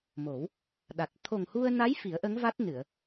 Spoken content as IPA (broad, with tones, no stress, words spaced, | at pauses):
mo˨˩˦w | ɗa˨˩t̚ t̪ʰo˨˩ŋhu˧ə̯ na˧˥j fi˨˩˦ə̯ʔə˧˥ŋva˦˥t̚nɨ˨˩˨ə̯